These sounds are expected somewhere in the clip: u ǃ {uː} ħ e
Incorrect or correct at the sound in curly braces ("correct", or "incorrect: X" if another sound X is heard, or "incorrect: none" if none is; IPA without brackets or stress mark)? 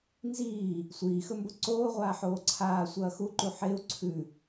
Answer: incorrect: u